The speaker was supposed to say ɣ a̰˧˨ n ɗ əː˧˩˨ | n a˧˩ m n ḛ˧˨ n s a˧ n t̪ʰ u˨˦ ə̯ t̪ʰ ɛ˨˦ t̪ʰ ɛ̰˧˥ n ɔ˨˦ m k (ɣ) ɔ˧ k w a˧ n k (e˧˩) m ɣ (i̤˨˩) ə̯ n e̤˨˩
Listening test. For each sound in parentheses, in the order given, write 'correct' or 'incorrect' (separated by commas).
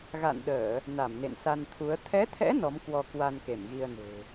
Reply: incorrect, correct, incorrect